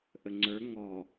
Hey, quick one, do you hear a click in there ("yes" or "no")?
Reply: yes